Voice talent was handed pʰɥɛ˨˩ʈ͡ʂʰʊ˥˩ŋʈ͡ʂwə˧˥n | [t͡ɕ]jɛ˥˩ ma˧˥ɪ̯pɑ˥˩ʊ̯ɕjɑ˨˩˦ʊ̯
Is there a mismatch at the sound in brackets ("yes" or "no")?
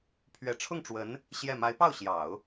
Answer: yes